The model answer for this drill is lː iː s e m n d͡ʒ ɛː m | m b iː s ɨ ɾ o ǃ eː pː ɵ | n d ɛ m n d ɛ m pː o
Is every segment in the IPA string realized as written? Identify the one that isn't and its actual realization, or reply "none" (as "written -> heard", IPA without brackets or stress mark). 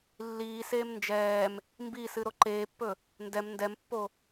e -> eː